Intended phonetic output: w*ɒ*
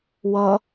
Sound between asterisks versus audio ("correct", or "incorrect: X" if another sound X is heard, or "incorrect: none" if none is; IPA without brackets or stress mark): incorrect: ʌ